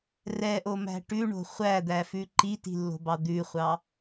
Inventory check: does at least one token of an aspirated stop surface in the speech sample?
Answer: no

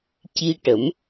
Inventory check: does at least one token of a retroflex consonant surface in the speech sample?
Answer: yes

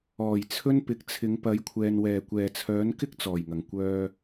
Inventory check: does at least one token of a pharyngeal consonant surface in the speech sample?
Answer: no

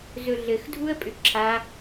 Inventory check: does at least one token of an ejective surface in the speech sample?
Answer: yes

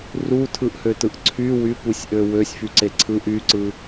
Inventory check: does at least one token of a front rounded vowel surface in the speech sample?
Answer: yes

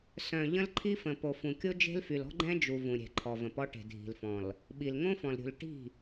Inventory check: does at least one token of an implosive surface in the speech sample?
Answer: yes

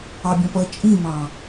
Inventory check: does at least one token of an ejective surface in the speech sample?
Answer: yes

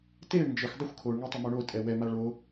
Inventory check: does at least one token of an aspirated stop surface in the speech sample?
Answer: yes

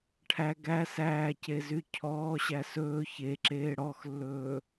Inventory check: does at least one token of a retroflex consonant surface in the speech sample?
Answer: yes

